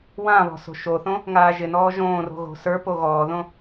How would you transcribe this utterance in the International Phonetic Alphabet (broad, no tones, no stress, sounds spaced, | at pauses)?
w ã β ɔ̤ s o̤ ʃ o θ õ | ŋ aː ʒ ɪ n ɔː ʒ õː r o̤ ɣ o̤ s ə˞ p o ɣ ɔː ð õ